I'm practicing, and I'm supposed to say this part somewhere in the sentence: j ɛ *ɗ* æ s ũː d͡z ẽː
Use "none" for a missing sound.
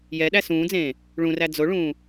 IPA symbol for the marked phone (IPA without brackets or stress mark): ɗ